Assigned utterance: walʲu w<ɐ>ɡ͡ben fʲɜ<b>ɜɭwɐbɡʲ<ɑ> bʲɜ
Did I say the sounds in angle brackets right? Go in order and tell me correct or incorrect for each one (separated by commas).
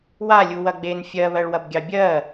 correct, incorrect, correct